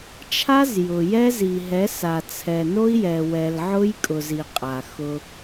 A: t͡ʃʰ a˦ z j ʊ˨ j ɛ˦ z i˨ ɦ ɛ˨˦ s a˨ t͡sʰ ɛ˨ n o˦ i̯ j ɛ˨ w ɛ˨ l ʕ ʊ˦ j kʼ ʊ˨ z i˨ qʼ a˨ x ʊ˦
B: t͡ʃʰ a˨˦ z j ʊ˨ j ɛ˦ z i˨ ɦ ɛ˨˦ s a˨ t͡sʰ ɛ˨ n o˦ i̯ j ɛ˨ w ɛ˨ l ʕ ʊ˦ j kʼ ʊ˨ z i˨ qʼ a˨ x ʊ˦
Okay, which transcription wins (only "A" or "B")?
A